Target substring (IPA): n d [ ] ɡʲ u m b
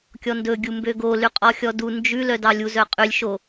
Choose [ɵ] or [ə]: ɵ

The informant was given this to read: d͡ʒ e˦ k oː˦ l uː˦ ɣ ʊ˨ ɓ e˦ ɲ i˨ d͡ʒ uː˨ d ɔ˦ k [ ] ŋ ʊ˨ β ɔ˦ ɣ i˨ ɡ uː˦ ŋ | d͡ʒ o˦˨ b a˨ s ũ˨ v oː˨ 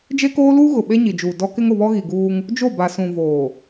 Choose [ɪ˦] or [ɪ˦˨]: ɪ˦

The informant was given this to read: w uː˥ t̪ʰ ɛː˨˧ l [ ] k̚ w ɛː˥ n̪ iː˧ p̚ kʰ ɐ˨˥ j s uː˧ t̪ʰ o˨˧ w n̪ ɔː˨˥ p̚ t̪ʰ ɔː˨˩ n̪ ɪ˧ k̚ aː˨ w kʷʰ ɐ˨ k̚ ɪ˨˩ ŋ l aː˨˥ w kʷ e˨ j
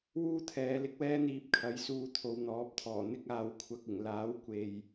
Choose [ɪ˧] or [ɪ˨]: ɪ˧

